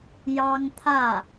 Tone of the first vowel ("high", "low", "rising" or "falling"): high